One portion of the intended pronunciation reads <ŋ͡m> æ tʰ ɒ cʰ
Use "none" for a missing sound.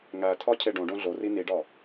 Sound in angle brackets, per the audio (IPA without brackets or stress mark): ŋ